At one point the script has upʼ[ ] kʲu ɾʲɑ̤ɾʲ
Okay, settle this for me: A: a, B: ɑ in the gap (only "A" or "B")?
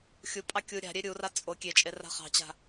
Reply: B